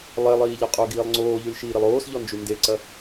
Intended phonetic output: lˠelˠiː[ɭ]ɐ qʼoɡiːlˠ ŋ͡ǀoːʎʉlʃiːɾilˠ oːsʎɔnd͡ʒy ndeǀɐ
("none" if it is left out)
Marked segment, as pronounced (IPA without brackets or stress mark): ʎ